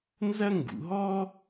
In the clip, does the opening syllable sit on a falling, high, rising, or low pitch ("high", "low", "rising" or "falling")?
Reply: high